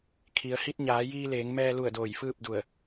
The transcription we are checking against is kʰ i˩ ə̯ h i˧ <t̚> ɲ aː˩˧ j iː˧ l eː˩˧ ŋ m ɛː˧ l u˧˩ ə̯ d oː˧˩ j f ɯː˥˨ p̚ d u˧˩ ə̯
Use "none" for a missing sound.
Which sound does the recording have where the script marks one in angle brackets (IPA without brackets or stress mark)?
t̚